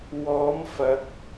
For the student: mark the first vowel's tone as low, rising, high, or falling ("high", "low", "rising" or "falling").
rising